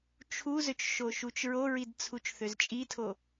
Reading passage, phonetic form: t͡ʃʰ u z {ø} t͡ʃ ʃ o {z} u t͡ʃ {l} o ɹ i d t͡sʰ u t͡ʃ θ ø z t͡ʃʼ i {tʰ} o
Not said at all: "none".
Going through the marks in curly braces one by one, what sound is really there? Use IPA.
ø, ʃ, ɹ, tʰ

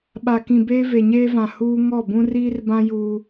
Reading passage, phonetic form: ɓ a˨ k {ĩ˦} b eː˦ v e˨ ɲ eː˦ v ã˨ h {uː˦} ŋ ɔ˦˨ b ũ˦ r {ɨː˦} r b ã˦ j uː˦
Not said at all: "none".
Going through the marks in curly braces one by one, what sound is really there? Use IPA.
ĩ˨, uː˦, iː˦

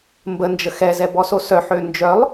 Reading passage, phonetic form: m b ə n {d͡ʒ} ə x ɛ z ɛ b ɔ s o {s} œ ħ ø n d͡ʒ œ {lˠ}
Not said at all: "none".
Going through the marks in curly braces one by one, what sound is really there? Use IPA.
d͡ʒ, s, lˠ

